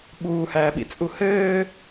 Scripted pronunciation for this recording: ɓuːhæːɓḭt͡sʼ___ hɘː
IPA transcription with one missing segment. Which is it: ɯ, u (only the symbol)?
u